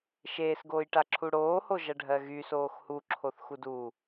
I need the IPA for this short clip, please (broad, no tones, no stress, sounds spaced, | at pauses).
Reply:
ʃ eː s ɡ oː j ʈ a ǁʰ u ɽ oː h o ʒ ɐ ɖʱ ɜ ɣ y s oː x h u ǁʰ o θ x u d u